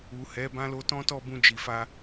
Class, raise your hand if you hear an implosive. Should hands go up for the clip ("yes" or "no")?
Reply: no